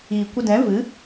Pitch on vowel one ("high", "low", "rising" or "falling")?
low